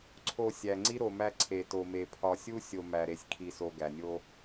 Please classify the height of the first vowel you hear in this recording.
mid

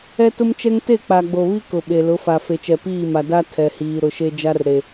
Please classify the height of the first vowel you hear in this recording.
mid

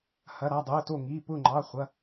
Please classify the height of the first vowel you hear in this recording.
low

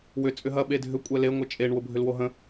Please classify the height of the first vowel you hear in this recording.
high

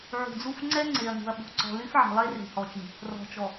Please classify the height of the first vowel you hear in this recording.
high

